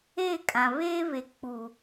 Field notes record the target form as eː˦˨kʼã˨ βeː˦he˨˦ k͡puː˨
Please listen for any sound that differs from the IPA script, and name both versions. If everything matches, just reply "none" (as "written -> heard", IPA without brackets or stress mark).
h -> β